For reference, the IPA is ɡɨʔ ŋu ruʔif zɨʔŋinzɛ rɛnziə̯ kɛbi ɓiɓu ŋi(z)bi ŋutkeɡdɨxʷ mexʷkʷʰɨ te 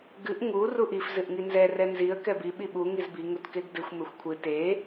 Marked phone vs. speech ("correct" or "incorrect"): correct